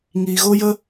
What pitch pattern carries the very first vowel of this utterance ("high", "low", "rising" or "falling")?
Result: low